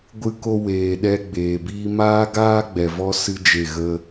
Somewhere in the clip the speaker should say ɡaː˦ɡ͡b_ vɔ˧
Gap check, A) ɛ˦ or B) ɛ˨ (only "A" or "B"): B